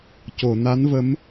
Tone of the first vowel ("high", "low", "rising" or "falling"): low